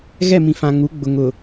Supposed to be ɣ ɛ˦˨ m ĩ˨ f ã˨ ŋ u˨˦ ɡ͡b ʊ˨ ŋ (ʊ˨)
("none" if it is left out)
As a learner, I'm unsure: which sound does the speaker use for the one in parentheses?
ʊ˨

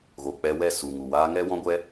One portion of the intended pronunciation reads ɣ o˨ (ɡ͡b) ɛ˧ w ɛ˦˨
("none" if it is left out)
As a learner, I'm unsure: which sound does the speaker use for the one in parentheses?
k͡p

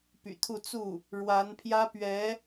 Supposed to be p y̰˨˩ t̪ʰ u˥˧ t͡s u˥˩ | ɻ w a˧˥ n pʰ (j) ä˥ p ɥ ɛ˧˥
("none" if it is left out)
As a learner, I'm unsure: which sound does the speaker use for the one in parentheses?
j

